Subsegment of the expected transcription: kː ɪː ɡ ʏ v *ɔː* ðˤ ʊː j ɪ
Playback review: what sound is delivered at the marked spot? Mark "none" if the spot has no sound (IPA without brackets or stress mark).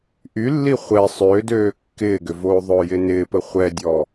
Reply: oː